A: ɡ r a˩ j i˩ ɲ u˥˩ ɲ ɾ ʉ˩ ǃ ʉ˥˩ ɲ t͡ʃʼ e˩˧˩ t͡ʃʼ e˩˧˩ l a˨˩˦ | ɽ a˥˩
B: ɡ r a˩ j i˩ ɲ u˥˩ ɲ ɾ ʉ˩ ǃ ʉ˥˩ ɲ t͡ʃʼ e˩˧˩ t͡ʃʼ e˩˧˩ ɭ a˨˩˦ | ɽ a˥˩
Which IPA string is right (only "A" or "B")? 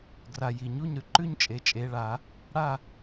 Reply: B